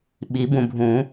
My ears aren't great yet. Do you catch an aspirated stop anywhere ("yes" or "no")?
no